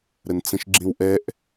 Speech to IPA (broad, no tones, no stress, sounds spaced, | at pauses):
ɾ ə n t͡s ə̃ ʃ ɡ͡ǁ ĩ w ʔ ɛ ʔ